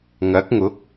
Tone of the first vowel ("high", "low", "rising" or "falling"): rising